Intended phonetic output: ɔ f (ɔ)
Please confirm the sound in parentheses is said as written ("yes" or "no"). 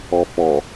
yes